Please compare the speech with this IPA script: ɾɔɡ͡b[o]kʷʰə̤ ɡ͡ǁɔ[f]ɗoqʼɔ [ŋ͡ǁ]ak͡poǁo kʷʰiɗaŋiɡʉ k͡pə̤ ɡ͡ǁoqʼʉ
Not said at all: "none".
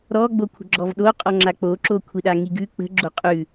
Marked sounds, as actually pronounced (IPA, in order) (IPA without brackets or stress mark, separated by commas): o, v, ŋ͡ǁ